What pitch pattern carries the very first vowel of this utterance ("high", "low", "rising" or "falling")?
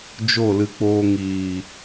falling